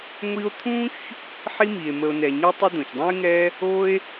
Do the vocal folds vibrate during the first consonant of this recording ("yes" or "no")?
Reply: yes